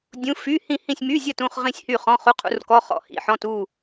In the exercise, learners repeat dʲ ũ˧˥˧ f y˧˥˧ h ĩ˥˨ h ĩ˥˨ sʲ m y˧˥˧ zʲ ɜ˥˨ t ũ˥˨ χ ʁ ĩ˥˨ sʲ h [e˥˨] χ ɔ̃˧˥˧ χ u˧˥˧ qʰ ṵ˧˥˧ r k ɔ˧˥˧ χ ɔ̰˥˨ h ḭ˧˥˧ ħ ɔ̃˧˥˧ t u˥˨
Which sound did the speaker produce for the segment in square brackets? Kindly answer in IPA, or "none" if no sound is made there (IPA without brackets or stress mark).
y˥˨